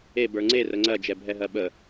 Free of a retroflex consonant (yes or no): yes